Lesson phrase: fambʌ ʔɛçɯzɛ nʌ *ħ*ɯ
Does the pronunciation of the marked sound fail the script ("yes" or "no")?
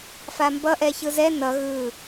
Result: yes